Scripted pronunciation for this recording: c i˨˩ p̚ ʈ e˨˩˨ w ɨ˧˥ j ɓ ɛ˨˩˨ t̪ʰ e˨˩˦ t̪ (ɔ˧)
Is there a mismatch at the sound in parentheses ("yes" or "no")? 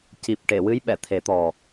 yes